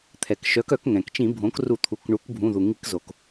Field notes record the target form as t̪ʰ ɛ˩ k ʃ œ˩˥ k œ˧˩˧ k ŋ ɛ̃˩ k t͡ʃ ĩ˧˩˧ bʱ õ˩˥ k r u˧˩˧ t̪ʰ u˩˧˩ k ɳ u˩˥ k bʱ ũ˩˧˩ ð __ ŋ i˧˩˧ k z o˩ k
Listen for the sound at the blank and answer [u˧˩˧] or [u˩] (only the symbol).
u˩